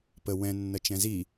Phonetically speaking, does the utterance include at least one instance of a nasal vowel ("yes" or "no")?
yes